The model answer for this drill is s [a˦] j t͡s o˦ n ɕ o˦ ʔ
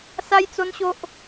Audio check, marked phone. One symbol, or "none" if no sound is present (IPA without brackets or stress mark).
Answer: a˦